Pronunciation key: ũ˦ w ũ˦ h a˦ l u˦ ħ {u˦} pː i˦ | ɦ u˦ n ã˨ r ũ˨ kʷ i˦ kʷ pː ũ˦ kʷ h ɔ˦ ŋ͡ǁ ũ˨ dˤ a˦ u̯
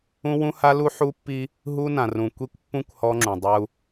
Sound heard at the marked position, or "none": u˦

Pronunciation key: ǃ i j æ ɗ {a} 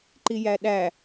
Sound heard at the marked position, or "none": æ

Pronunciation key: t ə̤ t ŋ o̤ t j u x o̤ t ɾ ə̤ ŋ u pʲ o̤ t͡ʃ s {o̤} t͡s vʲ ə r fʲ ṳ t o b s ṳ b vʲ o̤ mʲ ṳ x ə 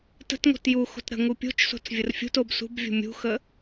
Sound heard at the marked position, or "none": o̤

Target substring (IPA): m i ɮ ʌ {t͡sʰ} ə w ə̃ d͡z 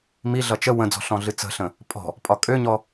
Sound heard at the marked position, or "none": t͡ʃ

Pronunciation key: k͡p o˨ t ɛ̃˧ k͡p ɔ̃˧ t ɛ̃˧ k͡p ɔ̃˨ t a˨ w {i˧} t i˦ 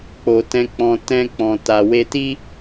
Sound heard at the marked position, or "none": e˧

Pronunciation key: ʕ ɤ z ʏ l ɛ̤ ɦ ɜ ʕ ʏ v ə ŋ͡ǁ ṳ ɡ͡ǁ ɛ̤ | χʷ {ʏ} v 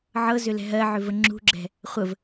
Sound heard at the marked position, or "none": ə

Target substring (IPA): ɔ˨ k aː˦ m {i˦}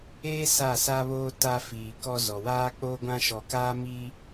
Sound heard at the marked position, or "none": iː˦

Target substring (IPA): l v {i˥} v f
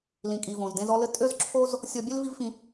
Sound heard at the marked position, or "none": i˥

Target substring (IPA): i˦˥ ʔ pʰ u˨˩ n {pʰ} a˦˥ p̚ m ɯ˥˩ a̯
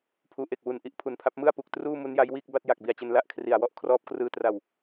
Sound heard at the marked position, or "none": pʰ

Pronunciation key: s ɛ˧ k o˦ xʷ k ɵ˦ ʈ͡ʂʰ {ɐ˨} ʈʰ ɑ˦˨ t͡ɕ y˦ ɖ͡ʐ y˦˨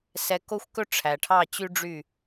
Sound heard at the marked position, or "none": æ˨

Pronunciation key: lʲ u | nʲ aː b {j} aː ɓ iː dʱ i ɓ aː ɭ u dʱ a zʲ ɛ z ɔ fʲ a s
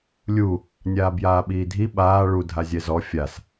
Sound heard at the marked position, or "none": j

